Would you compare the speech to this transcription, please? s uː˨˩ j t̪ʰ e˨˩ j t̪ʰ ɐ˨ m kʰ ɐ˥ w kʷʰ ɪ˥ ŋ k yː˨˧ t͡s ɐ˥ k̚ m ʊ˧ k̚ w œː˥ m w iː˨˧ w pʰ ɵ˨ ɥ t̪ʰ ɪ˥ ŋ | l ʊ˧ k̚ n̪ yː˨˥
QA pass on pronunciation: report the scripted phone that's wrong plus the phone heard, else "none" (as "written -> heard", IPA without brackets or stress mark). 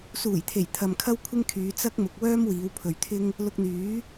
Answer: k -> kʰ